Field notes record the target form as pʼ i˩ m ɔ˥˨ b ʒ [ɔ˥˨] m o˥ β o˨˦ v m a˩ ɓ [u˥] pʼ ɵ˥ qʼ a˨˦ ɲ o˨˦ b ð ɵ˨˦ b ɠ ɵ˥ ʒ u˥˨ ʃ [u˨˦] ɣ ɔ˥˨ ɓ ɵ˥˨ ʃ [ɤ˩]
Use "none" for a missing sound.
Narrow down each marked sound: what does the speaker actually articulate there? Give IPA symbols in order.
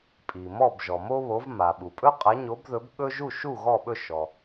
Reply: ɔ˩, u˩, u˥˨, ɔ˩

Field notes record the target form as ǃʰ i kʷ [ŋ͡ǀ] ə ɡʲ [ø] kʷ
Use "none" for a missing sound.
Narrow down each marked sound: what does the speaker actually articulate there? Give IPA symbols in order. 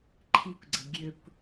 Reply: ɡ͡ǀ, ø

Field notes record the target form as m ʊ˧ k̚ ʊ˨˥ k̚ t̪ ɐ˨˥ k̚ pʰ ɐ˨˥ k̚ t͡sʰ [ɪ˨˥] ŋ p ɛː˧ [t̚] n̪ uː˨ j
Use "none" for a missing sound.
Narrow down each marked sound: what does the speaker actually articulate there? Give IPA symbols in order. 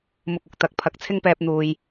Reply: ɪ˥, p̚

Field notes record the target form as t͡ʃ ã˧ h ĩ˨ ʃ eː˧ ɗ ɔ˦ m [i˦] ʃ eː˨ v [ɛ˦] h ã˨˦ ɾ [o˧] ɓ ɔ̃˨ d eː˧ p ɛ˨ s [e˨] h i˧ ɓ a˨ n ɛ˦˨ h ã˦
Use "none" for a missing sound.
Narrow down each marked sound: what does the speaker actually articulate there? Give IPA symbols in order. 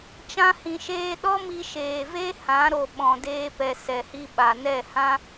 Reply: i˧, e˦, o˨, ɛ˨

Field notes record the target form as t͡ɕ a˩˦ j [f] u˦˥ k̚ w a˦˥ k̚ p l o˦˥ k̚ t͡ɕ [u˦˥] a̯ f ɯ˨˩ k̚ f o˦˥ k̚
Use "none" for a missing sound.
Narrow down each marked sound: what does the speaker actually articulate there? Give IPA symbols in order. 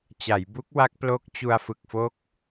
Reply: b, u˧

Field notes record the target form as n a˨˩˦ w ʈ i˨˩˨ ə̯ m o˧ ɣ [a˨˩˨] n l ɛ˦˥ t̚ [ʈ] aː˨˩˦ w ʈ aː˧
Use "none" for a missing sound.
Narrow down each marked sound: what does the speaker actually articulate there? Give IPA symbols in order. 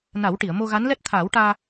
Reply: a˧˥, t̪ʰ

